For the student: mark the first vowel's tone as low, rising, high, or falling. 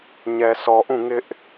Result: low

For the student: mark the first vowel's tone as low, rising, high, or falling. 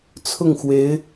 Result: falling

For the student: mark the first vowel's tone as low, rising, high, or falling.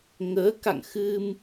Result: rising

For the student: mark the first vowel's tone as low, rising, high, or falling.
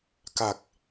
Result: low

